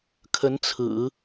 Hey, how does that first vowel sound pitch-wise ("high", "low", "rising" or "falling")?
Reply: rising